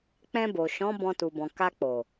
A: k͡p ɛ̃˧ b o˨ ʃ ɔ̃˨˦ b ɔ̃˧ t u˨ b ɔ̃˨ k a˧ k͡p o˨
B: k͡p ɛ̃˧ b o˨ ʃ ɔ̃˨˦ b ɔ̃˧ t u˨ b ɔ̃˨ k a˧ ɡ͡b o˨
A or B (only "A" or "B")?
A